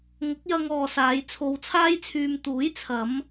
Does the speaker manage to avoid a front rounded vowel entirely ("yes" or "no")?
no